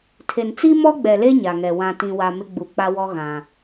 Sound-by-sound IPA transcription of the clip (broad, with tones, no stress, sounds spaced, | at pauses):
tʰ e˨ n t͡s i˦ m ɔ˦ ɡ͡b ɛ˨ l e˦ ɲ a˨ ŋ ɛ˨ w ã˨ t ĩ˨ w a˨ m ɪ˦ ɡ͡b u˨ k͡p a˦ w ɔ˦ ɣ ã˨